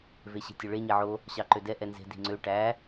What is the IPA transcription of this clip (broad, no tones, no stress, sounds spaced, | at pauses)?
v e ɕ e̤ tʲ ɵ ɭ e ɲ e ʕ o | ɕ ɑ ǃ ø d ɛ ʔ ɛ n z e̤ d i̤ ŋ͡ǀ ø ʈ æ